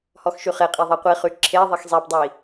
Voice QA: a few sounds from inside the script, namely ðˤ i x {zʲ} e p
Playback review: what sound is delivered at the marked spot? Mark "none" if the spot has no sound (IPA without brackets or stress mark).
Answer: zˤ